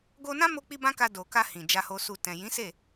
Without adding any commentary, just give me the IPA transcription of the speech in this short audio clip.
ɡo˧nã˦mo˧k͡pi˧ bã˦ka˧ do˨ka˧ hĩ˨ d͡ʒa˨ho˨su˨ tɛ̃˨ jĩ˨˦se˦˨

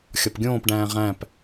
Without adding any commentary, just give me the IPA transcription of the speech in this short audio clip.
xʲɒpɡʲõːpɖæ̃ː ʁæ̃p

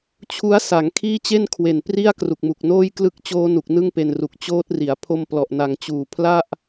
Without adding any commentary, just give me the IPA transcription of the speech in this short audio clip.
t͡ɕʰu˦˥a̯sa˩˦ŋ kʰiː˥˩t͡ɕe˥˩nkʰwe˨˩npri˥˩a̯ kru˨˩k̚mu˨˩k̚noː˥˩j klɯ˦˥k̚t͡ɕoː˦˥nu˨˩k̚ nɯ˥˩ŋpe˧nru˨˩k̚ t͡ɕoː˦˥t̚ri˩˦a̯ pʰo˧mplɔ˨˩ʔna˨˩ŋ t͡ɕuː˨˩pʰla˥˩ʔ

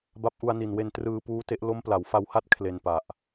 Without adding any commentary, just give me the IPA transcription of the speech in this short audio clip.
ba˦˥p̚ʔu˧a̯ni˨˩nwe˧n trɯː˧puː˦˥te˦˥ʔ lo˦˥mpla˩˦wfa˧wha˥˩t̚ kʰle˧npa˨˩ʔ

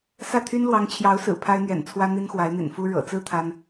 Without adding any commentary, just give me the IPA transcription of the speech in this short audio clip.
sä˥˩t̪ʰy˥n lwɑ˧˥ŋt͡ɕʰjɑ˧˥ʊ̯ sɹ̩˨˩pʰa˥ɪ̯n̪ɥɛ̰˨˩nt͡sʰwä˥ n̪i˥nxwa˧˥ɪ̯n̪ḭ˨˩nfu˥ ɻɤ̰˨˩t͡sɹ̩˥ t̪ʰa˥n

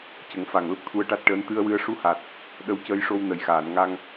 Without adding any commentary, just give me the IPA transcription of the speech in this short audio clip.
cə˨˩˦ŋfa˨˩ŋ lə˦˥k̚t̪ʰu˧ə̯ʈa˦˥t̚ʈəː˧˥n t̪ɨ˧ə̯wɨ˧˥ə̯ ʂu˧ha˨˩t̚ | ɗə˧˥wcəː˧jʂo˧w nə˨˩jxaː˨˩˨nŋa˧ŋ

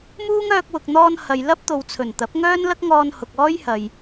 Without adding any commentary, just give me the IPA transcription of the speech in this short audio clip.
muː˥ŋ œː˧k̚wʊ˨k̚ n̪ɔː˧n hɐ˨j lɐ˥p̚t̪o˨wt͡sʰɵ˨˩nt̪ɐ˨˥p̚ ŋœː˥nlɐ˥k̚ŋɔː˧n hʊ˨k̚ɔː˥jhɐ˨j

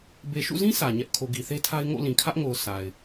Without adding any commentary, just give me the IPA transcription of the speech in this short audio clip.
be˨ʃṵ˦˨zĩ˦ sä˨ɲɛ˦ʔ kʰo˨ɡi˨θe˦tʰa˦ɪ̯ ŋo̰˦˨lĩ˨kʰä˦ʔŋo˨ʊ̯ sʰa˨ɪ̯

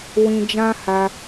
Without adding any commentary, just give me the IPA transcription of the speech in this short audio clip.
wĩ˧d͡ʒã˦ ha˧

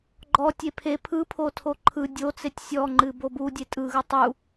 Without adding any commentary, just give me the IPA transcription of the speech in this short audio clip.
ɡ͡ǃɔ tʲepʰe pʰɯpʰotʰo ǃʰɯ dʲot͡setʲ sʲɔŋ͡ǃɨ bobu dʲetʼɯɣɯ tˤu

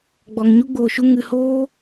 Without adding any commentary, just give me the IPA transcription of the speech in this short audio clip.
ɡ͡bɔ˨ŋɲu˦ ɡ͡boː˨ʃu˧ ŋɨ˨ hoː˦

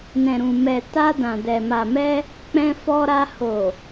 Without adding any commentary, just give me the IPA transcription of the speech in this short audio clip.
nɛ̃˨ɾũ˨ mɛ˨ ta˧ dã˨dɛ˨ ma˨mɛ˧ | k͡pɛ̃˧fɔ˧ɾa˧ ho˨

